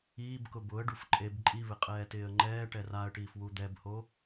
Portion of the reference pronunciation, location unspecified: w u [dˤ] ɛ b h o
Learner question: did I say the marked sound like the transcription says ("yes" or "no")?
no